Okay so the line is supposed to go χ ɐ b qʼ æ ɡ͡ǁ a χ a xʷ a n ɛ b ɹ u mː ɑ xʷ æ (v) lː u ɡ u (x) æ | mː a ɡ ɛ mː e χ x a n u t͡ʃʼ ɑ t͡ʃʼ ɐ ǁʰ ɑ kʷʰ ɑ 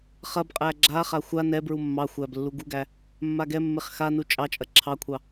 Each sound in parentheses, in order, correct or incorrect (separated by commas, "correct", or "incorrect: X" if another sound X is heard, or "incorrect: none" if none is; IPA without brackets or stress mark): incorrect: b, incorrect: ɡ